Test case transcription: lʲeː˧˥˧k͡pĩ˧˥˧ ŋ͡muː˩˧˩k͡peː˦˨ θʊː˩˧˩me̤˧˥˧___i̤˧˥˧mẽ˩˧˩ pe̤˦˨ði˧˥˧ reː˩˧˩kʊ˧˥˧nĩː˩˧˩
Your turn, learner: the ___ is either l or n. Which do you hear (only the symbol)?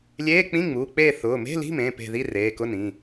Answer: l